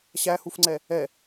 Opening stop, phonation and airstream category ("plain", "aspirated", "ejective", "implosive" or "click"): click